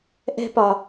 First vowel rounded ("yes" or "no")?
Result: no